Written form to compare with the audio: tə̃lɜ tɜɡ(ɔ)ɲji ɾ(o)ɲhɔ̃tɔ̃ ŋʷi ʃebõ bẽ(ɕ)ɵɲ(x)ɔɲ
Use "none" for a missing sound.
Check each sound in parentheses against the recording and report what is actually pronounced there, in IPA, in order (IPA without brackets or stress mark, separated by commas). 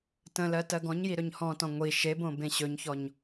ɔ̃, ɵ, ɕ, ç